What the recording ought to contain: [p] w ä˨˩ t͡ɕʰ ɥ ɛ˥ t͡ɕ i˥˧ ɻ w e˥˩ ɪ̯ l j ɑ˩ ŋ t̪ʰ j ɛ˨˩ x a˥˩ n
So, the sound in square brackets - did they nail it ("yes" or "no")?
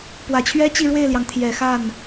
yes